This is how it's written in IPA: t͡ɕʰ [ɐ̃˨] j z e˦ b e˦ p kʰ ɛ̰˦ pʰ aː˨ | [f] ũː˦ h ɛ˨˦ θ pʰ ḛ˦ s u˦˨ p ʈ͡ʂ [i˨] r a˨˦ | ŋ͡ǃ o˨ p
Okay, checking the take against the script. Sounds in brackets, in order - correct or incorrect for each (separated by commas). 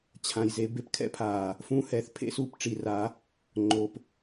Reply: incorrect, correct, correct